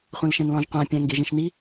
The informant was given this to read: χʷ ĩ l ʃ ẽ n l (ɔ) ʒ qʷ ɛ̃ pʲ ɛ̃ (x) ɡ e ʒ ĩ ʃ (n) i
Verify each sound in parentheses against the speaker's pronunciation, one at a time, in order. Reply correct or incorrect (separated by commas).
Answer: incorrect, incorrect, correct